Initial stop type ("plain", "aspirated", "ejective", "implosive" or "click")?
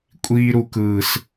ejective